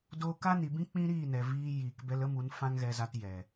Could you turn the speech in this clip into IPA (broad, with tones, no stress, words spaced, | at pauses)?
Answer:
doː˦ ka˦ni˨bĩ˦ k͡pĩ˦ɾiː˦˨nɛ˨ viː˧jiː˨k bɛ˧lə˦mu˨˦n fã˦ŋɣɛ˧za˧tjɛ˨